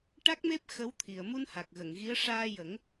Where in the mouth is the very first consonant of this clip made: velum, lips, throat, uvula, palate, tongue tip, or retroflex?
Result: retroflex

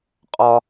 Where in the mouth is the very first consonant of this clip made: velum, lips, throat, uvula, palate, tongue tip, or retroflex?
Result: uvula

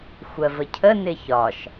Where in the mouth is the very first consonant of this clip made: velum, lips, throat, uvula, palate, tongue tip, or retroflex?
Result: velum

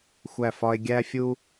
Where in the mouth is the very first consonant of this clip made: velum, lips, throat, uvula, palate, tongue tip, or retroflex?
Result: velum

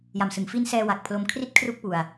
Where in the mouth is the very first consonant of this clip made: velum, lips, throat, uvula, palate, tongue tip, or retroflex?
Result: palate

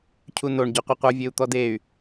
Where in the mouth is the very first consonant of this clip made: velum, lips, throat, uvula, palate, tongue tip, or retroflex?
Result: palate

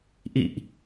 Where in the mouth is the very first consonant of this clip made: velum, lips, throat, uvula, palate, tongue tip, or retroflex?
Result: throat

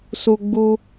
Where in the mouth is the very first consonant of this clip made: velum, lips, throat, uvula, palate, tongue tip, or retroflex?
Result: tongue tip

